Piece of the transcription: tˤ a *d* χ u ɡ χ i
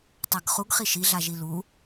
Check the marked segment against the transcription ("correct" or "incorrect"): incorrect